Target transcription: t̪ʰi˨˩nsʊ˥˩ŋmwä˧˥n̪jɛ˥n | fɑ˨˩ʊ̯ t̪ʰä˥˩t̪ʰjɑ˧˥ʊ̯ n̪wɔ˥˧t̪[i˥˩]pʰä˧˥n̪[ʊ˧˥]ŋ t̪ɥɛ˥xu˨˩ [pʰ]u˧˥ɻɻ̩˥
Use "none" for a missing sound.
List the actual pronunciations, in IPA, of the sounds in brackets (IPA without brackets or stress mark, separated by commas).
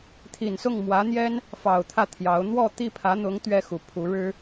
i˥˩, ʊ˧˥, pʰ